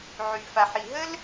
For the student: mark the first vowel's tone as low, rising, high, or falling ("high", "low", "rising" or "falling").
low